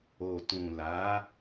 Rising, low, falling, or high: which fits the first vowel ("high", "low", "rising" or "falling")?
low